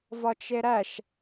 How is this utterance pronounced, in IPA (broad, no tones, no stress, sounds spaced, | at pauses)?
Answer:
v ɒ t͡ʃ e ɾ æ ʃ